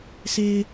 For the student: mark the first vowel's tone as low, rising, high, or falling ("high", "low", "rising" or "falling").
low